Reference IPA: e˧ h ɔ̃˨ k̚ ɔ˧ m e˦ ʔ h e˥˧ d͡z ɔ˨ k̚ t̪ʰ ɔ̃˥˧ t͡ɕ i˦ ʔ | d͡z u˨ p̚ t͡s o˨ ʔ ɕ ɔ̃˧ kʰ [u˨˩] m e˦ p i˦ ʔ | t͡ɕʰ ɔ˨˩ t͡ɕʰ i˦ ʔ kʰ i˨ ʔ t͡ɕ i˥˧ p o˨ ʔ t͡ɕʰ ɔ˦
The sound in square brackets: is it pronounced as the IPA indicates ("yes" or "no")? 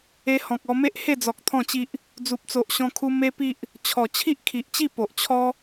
no